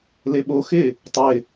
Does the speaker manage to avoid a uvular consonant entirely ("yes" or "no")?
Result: yes